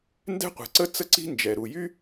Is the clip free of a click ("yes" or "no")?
no